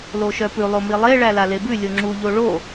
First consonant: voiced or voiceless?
voiced